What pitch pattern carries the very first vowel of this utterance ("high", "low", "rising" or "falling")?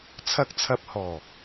low